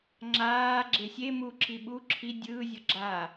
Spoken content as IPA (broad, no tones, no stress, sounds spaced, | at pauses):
ŋ͡ǁ aː ɡ͡ǁ e sʲ e m u ǁ i ɓ u ǁʰ i dʲ ɯː zʲ ɤ ɡ͡ǁ aː